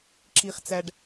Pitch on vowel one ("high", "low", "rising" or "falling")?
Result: low